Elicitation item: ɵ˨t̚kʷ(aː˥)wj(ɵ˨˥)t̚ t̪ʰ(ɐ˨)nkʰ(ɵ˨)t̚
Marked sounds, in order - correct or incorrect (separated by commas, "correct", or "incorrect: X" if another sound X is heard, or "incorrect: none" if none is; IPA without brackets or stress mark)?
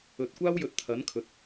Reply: correct, incorrect: ɵ˨, incorrect: ɐ˨˥, correct